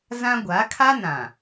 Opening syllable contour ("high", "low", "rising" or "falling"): high